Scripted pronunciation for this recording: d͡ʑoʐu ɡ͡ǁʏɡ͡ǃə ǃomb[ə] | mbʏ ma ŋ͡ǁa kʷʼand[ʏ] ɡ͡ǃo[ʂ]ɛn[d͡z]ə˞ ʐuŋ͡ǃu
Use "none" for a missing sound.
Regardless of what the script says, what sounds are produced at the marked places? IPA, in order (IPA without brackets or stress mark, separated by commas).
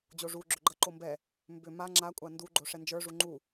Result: ɛ, u, ʂ, d͡ʒ